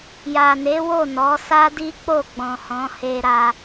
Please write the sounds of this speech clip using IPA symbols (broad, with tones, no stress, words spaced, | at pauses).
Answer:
ja˨ne˨˦wo˦˨ nɔ˨˦ sa˦di˦k͡po˦˨ ɡ͡bɔ̃˨hɔ̃˨˦he˧ ɾa˧